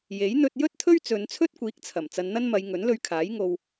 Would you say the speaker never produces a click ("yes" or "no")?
yes